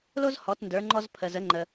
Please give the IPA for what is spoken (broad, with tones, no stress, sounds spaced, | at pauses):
l o˥ z h ɔ˩˧ t n d ə˞˩˧ ŋ͡ǃ ɔ˧ z pʰ ə˩ z ə˩˧ ŋ͡ǃ ə˩